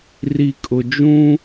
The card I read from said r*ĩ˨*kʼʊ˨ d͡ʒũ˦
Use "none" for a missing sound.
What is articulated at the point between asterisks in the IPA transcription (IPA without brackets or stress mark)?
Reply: i˨